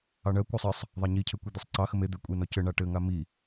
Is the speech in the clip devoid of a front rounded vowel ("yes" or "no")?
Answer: yes